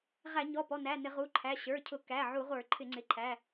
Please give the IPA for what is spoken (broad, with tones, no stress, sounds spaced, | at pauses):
ʁ æ˧˩˧ ɲ ɔ˩˧˩ p ɔ˩˧˩ n æ˩˧˩ n ɪ˧˩˧ ʁ u˩˧˩ ǃʰ æ˩˧˩ ɕ ə˞˩˧˩ cʰ ʊ˧˩˧ k æ˩˧˩ ʕ u˧˩˧ ʁʷ ə˞˧˩˧ ǃʰ ɪ˧˩˧ ŋ͡ǀ ɪ˩˧˩ ǃʰ æ˩˧˩